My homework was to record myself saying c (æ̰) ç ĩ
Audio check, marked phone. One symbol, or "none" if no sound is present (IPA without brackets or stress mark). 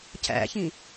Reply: æ̰